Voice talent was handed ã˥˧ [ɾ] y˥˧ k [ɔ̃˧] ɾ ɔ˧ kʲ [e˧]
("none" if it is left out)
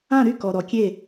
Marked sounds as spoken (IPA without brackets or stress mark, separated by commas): ɾ, ɔ˧, e˥˧